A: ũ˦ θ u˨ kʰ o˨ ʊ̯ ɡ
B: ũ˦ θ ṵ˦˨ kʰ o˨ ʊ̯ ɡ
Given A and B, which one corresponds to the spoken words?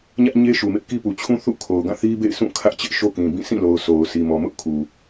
B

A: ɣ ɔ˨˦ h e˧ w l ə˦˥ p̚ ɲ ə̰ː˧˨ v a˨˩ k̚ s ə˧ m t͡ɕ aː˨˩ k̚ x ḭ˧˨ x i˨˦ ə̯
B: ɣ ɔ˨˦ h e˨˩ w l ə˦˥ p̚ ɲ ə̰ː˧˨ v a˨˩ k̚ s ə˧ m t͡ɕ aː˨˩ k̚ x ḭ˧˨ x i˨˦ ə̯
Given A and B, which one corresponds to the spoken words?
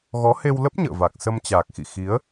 A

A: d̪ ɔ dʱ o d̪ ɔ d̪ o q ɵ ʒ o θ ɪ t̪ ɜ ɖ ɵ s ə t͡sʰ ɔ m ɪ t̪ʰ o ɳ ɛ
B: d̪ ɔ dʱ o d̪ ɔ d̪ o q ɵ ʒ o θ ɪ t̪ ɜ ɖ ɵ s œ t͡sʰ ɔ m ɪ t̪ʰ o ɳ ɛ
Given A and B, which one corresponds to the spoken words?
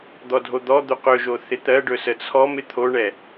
A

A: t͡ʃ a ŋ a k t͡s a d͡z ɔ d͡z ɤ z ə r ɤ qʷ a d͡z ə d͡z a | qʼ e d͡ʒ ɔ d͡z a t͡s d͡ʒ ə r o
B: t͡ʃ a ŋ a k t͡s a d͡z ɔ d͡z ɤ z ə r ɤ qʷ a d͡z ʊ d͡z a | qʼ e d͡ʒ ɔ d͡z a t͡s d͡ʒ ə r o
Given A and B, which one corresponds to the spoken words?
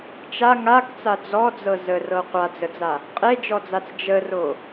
A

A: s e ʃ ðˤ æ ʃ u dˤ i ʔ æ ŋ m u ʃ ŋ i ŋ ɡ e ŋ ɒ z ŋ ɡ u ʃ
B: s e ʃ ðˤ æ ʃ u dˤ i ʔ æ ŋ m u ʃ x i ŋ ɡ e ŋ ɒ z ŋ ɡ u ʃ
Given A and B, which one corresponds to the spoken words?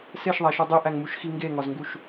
B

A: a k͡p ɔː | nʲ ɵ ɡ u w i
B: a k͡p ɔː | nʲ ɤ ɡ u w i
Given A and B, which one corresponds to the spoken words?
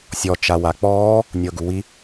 B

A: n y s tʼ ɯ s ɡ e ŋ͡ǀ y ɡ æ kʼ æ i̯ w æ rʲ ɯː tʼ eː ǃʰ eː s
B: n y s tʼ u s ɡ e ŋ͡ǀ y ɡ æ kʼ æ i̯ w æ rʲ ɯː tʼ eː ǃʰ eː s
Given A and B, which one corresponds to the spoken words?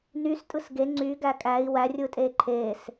A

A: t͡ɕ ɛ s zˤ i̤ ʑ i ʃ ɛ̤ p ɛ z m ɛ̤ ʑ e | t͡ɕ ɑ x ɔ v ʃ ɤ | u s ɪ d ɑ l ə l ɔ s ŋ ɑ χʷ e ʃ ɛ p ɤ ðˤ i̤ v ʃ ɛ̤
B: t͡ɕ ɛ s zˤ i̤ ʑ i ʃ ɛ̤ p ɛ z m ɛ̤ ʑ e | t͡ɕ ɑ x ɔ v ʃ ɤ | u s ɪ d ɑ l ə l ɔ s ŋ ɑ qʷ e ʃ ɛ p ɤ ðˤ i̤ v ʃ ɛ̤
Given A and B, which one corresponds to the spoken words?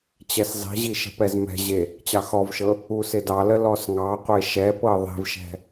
B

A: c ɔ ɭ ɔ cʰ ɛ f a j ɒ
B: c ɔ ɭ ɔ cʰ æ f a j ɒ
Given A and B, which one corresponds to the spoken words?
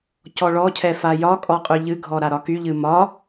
A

